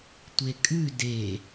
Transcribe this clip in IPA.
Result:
tʷ e kʼ ʉ d e

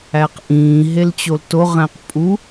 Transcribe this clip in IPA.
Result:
æ q ʔ ĩː ɦ e l t͡ɕ o l t o ʁ æ̃ q pʼ u

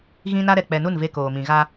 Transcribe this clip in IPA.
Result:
ɣ ĩ˦ n a˦ ɾ ɛ˨ k͡p ɛ˨ n u˦˨ n v e˦ k oː˨ m ĩ˨ ɣ a˦

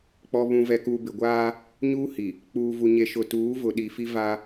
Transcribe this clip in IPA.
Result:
k͡p ɔ˨ β ũ˨ v ɛ˨ k u˨ b ɪ˨ ɡʷ aː˦ | ɲ uː˦ h i˨ | k͡p uː˨ v u˨ ɲ e˨ ʃ ʊ˨ t uː˨˦ v ʊ˨ ɗ i˨ f i˦ v a˦

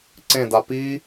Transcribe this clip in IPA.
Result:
ǀ ẽ d a p iː

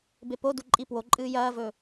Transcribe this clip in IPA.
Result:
b e p o d u ǃʼ i p w o ǃʼ ɨː j ɐː v ɵ

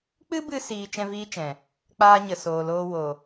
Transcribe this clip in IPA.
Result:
k͡p ɨ˦ b ɨ˧ s iː˦ t͡ʃ ɛ̃˦ v iː˦ t͡ʃ ɛ̃˨ | k͡p aː˦ ɲ ə˨ s oː˨ l oː˧ w o˨

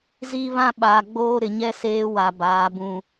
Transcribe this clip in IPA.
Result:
z i˦ β ã˦ ɓ aː˨ ɡ͡b oː˦ ɾ ɪ˨ ɲ ɛ˦ s eː˦ w a˨ b aː˨˦ b ũ˨

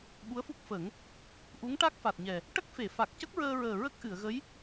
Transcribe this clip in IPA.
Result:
ɓ u˧˥ ə̯ f u˦˥ k̚ f ə˨˩˦ ŋ | ʔ u˧˥ ŋ ʈ a˦˥ k̚ f a˨˩ t̚ ɲ ɛ˨˩ | ʈ ə˦˥ k̚ f e˨˩˨ f a˨˩ k̚ c ə˦˥ k̚ ɹ əː˧ ɹ əː˨˩ ɹ ə˦˥ k̚ ʔ ɨ˨˩˨ ə̯ ɣ ə˧˥ j

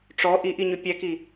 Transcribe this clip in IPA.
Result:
ʈ͡ʂ ɔ ʔ i ʔ i ɲ ʏ pʲ ɛ k i

